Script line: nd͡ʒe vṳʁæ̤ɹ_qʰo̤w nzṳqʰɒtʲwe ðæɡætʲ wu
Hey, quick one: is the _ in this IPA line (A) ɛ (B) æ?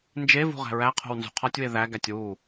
B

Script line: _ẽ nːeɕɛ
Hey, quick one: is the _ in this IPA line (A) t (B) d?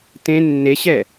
A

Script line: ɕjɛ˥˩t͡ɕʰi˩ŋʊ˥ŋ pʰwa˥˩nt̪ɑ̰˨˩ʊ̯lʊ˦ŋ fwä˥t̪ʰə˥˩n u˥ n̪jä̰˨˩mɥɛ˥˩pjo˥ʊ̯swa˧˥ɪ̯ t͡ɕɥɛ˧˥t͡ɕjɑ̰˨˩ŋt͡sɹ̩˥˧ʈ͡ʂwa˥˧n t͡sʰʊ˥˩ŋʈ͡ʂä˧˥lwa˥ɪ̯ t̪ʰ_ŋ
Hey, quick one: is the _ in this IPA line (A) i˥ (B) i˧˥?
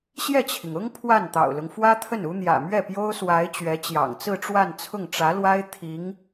B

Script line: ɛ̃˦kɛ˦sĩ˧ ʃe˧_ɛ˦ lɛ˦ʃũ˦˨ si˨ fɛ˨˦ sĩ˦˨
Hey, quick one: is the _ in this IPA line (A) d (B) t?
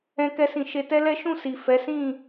B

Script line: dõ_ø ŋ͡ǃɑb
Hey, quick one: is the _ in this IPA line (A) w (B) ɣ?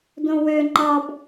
A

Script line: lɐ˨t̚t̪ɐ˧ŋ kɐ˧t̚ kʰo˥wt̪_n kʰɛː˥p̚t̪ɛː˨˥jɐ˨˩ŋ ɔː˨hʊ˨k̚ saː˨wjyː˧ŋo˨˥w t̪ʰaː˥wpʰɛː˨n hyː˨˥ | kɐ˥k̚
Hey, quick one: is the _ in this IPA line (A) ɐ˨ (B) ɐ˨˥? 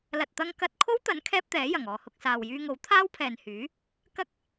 B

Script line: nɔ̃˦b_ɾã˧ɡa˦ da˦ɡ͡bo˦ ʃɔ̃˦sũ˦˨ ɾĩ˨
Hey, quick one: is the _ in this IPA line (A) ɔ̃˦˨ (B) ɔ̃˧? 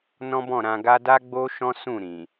A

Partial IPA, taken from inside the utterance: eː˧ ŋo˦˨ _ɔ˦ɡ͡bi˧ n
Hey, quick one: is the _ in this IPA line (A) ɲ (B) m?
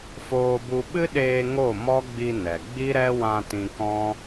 B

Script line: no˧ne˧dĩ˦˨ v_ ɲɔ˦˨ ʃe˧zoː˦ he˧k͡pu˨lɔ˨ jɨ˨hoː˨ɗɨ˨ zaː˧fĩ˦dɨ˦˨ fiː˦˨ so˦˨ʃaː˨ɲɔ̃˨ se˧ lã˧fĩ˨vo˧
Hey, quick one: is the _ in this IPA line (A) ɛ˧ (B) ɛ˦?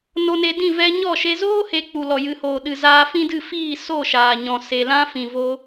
A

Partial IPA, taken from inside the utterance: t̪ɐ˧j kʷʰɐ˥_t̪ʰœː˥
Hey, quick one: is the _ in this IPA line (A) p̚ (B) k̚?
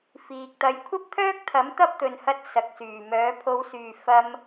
A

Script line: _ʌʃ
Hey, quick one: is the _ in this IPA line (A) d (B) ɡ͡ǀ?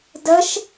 A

